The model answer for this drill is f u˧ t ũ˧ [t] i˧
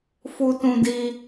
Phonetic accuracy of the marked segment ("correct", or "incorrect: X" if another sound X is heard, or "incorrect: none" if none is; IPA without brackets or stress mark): incorrect: d